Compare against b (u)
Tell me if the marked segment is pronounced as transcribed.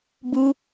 yes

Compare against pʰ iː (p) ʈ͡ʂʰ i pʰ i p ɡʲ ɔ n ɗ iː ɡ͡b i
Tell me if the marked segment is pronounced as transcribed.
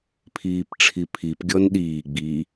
yes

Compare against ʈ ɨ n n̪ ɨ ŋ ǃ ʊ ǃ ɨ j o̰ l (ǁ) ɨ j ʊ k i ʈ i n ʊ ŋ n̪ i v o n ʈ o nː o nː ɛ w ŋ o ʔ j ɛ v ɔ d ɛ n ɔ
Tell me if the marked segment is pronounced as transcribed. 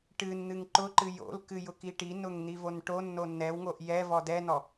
no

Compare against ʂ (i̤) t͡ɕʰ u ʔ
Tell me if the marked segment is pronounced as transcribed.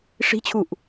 yes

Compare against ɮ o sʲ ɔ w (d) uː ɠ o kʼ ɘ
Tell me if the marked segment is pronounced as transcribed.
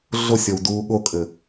yes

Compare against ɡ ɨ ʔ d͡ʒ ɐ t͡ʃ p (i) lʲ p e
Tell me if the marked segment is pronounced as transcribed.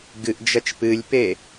no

